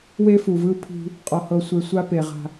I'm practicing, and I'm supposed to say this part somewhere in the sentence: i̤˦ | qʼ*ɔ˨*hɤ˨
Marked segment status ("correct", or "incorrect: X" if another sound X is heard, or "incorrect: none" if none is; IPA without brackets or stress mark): correct